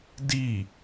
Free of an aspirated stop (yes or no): yes